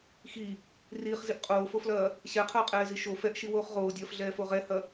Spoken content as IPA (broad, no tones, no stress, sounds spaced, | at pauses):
x i | r iː χ z i ʔ qʼ oː f o f l ɐː | ɕ ɛ qʰ ɐː qʼ ɛː z i ʃ o f ɛ ʔ ʃ i w oː χ ʁ oː dʲ ɐː f ɮ ɛː f o ʁ ɛ h ɐ